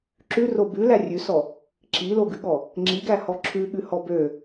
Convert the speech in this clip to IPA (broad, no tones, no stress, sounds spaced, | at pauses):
ǁ ʉ r o b ʉ l æ rʲ ʉ s ɔ | ǁ i l o ɡ ʉ ɠ ɔ | ŋ͡ǁ i ɡ æ h ɔ ǁʰ ʉ ɠ ʉ h ɔ b ø